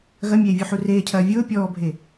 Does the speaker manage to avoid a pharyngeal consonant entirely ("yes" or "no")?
no